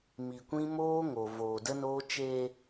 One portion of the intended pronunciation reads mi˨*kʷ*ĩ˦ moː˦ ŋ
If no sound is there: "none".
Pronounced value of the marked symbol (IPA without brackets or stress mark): kʷ